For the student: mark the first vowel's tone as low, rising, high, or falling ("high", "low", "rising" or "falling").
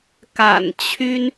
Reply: low